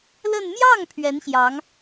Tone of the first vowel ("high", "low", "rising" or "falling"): falling